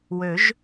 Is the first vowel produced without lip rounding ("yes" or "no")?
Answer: no